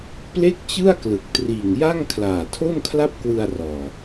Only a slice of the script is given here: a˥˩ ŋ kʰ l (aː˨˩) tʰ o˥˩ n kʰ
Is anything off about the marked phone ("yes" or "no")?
no